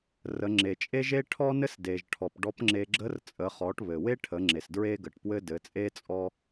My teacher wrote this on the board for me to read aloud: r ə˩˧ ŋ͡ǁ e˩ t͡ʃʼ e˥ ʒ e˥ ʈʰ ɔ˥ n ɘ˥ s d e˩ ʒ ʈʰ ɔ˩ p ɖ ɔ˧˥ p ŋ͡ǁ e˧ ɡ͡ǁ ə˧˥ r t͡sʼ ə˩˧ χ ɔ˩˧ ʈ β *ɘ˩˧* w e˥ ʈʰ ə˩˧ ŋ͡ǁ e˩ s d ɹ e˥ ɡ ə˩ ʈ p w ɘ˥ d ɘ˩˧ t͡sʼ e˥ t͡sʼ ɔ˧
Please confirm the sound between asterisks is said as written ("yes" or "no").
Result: no